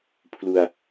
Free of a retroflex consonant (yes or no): yes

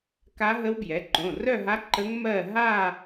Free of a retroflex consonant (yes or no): yes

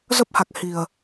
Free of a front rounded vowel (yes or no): yes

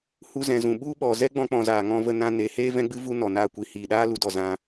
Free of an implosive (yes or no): no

